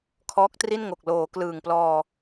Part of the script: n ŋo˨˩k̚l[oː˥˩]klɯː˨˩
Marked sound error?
yes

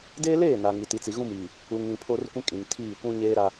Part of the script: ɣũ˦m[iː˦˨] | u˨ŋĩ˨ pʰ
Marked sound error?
yes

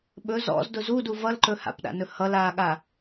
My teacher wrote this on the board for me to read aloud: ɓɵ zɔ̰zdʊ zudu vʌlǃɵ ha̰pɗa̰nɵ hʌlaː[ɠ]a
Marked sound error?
no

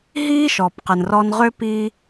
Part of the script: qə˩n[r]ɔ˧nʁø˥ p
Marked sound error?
no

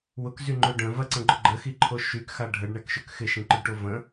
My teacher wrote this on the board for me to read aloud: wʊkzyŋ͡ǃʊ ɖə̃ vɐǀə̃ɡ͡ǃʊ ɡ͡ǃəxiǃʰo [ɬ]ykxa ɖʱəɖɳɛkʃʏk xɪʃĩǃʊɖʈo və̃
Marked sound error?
yes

